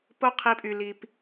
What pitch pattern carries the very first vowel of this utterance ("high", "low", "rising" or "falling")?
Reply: high